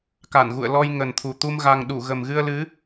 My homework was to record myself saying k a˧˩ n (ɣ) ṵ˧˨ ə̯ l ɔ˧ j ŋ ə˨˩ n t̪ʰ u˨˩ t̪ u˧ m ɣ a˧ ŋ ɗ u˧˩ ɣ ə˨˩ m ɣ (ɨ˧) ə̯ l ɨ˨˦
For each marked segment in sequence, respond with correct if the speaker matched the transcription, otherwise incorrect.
correct, correct

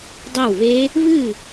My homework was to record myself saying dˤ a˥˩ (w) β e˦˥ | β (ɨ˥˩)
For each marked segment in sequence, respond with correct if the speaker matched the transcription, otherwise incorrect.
correct, correct

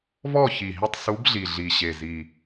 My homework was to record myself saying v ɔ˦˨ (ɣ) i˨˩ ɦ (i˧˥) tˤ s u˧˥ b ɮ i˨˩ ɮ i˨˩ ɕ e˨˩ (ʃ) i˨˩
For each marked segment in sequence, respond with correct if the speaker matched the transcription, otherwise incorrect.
incorrect: ç, incorrect: i˦˨, incorrect: z

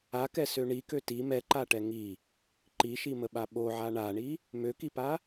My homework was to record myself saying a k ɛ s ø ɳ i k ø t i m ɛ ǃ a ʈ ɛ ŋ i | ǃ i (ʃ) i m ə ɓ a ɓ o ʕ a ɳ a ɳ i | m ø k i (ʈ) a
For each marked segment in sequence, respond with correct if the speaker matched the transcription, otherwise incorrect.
correct, incorrect: p

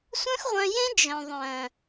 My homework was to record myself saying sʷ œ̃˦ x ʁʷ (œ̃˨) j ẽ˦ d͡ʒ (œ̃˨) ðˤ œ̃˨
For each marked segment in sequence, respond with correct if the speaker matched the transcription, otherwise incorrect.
incorrect: œ̃˧, correct

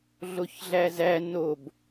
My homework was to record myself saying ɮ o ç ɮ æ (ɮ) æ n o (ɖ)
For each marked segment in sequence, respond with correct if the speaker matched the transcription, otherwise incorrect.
incorrect: z, incorrect: b

